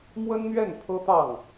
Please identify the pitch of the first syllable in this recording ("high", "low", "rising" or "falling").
high